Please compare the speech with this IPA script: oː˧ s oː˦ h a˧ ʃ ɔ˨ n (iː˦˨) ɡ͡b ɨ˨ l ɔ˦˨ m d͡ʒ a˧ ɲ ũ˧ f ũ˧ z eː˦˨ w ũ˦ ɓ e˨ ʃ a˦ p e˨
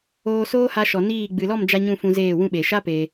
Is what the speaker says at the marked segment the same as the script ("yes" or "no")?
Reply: yes